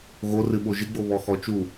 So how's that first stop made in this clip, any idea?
implosive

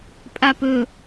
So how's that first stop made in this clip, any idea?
ejective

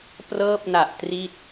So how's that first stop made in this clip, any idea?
plain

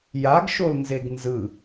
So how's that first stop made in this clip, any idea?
plain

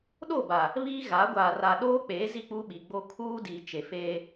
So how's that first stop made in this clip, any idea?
implosive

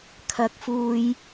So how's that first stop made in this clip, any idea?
aspirated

